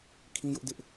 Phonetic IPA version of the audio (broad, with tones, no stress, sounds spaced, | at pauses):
kʰ ĩ˦ j ʊ˦ ʔ d ɪ˦ ʔ